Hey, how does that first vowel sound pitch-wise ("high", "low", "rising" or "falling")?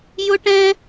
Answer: high